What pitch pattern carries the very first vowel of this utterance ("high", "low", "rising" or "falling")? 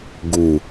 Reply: low